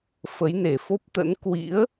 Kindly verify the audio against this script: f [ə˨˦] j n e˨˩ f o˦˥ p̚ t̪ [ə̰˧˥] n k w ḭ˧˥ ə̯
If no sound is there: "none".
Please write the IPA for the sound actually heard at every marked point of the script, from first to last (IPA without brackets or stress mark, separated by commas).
ə˨˦, ə̰˧˥